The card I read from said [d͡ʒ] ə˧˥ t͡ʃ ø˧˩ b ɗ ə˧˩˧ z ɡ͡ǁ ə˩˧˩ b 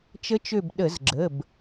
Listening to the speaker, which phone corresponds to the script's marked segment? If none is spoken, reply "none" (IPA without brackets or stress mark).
t͡ʃ